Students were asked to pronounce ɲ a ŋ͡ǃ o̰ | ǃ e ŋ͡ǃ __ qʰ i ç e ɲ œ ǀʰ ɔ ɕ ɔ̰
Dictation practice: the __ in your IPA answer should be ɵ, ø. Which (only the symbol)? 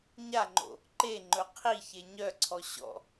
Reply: ɵ